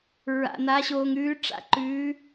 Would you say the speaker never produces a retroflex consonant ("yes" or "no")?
no